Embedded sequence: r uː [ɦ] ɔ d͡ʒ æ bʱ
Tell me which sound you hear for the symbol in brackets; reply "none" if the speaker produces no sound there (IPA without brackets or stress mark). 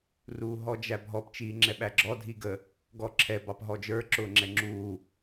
ɦ